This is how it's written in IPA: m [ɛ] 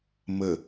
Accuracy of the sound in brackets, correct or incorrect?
incorrect